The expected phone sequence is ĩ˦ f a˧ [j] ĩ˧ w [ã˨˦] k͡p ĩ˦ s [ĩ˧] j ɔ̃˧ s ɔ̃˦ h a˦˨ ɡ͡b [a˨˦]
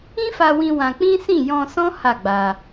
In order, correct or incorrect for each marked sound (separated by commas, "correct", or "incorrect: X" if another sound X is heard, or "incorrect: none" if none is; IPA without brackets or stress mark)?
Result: incorrect: w, incorrect: ã˧, incorrect: ĩ˦˨, incorrect: a˧